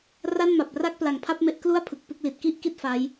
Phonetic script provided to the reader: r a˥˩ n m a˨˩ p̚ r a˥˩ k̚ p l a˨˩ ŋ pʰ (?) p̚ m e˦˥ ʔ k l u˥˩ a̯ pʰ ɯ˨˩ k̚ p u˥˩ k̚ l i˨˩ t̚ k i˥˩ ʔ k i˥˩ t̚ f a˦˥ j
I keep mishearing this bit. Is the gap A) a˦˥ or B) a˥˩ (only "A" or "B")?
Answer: B